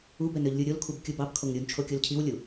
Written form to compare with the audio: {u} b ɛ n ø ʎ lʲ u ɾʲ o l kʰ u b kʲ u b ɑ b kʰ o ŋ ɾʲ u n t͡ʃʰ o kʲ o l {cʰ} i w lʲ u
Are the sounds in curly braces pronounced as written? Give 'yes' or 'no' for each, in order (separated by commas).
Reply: yes, yes